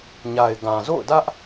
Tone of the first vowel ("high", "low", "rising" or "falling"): low